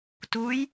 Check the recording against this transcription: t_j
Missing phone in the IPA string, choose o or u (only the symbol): u